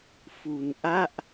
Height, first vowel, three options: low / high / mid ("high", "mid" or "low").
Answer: high